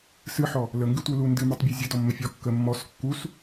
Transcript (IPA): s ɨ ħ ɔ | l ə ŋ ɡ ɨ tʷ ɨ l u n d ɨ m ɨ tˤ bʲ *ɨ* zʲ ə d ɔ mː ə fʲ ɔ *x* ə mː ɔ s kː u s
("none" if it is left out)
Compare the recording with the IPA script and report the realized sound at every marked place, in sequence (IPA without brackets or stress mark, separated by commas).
ɨ, kː